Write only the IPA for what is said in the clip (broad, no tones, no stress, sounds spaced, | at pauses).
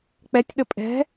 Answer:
k͡p ɛ tʲ ɗ ə pʼ ɛ̤